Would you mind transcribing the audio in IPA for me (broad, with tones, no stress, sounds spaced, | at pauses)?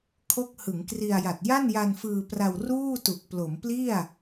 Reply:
kʰ o˦˥ k̚ h ɯ˩˦ ŋ k r i˧ a̯ j a˨˩ t̚ j a˥˩ n j a˧ n f ɯː˧ p r a˧ w r uː˥˩ t u˨˩ k̚ p l o˩˦ m p l i˥˩ a̯